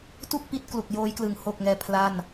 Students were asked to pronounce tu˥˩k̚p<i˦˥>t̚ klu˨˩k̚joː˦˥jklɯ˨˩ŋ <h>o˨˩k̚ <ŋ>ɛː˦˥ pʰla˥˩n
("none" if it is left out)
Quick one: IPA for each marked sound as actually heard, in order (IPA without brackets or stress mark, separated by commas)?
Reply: i˦˥, h, ŋ